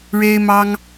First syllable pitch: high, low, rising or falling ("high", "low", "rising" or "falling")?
high